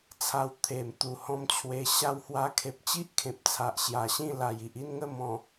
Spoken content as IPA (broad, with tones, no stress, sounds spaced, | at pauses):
t͡sʰ a˧ w t̪ʰ e˨˩ m t̪ u˨˩ h ɔ̃˧ m t͡ɕʰ w e˧ ɕ a˧ w h w a˧ kʰ e˨ p̚ t͡ɕ i˦ ʔ kʰ ẽ˨ p̚ t͡sʰ a˨ ʔ ɕ j a˨˩ ɕ ĩ˥˧ l a˨˩ j i˨ ʔ i˥˧ n ŋ ə˥˧ m ɔ̃˨˩